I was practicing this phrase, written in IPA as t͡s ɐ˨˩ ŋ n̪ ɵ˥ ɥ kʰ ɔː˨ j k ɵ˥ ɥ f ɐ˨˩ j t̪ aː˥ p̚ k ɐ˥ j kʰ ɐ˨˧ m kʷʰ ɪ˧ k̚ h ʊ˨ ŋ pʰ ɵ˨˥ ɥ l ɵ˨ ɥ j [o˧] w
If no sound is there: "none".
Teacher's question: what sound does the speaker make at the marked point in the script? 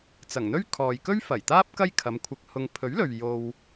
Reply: o˧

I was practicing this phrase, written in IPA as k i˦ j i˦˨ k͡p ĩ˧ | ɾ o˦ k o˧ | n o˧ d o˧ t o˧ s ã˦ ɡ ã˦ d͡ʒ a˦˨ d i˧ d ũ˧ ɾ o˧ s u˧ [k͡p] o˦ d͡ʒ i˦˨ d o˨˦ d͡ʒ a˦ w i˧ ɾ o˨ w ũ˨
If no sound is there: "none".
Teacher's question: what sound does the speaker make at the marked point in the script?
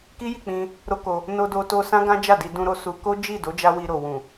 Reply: k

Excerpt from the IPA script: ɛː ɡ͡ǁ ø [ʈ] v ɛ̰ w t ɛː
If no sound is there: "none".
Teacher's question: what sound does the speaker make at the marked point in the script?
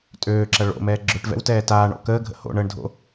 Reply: ʈ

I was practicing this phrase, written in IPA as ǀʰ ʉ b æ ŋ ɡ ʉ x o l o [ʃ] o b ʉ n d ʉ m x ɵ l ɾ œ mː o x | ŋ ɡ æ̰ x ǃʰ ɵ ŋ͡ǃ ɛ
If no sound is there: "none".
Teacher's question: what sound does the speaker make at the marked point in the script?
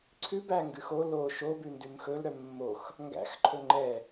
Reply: ʃ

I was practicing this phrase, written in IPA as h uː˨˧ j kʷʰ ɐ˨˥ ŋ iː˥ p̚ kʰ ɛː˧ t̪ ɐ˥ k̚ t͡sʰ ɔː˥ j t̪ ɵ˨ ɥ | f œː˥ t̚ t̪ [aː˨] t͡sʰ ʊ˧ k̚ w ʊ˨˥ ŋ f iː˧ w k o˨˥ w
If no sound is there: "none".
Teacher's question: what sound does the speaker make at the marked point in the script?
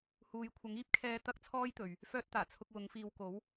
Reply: aː˨˩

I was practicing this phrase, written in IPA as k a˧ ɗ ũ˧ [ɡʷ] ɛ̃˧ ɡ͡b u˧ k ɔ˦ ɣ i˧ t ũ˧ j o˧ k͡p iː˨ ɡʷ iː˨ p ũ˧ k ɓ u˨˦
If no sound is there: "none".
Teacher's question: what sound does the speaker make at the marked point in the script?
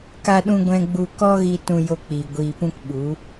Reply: ɡʷ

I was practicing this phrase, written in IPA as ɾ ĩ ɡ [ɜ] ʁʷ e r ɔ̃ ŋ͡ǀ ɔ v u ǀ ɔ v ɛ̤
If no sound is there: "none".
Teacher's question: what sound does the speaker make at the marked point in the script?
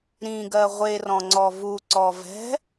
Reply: ɜ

